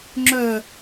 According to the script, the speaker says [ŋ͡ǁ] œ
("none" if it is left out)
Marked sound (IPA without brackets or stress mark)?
ŋ͡ǁ